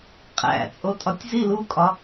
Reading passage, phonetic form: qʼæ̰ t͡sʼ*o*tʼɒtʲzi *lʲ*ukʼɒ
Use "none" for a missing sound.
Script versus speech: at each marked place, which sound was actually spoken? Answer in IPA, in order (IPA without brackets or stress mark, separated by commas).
o, l